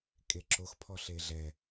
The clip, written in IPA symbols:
kʼ e ǁ o x pʰ ɔ ɬ e ɮ ɛ

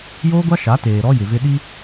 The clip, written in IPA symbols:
j oː˦ ɡʷ a˦ ʃ a˨˦ t eː˨ ɾ ɔ˦ j ɪ˨ v ɪ˦ ɗ i˦

